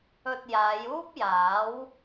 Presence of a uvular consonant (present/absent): absent